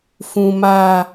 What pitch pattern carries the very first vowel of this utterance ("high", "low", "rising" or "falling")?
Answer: low